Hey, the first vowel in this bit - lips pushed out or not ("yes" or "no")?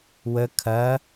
no